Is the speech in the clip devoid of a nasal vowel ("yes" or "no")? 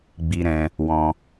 no